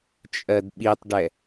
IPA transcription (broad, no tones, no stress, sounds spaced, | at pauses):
t͡ʃʼ ɜ d ɓ i tˤ ɖ ɛ